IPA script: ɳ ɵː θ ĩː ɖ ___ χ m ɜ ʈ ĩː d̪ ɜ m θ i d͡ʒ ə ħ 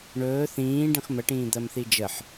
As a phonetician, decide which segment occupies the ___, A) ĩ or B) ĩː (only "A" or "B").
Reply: A